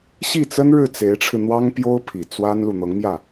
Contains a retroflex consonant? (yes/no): yes